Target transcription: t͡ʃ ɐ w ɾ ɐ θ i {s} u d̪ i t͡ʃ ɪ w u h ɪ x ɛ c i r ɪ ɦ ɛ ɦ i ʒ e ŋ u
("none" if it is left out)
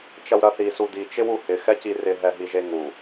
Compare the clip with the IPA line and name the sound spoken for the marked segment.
s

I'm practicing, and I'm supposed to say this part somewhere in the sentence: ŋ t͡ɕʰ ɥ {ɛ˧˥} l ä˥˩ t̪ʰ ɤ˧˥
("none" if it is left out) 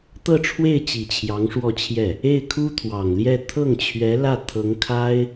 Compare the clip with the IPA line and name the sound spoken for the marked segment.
ɛ˧˥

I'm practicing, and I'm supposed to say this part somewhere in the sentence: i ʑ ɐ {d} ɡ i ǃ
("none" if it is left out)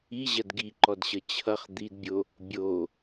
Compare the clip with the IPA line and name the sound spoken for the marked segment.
d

